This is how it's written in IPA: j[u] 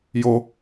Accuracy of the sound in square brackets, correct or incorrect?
incorrect